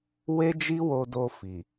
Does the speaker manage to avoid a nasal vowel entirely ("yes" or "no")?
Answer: yes